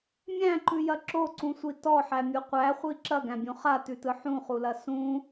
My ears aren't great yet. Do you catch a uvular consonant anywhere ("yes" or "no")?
yes